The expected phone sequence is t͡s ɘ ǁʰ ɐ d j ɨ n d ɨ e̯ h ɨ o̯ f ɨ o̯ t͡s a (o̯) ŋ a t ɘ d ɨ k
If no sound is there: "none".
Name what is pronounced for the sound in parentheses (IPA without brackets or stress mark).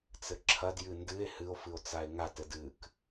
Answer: e̯